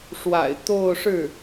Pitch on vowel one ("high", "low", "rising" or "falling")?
low